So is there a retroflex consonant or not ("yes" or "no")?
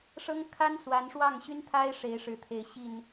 yes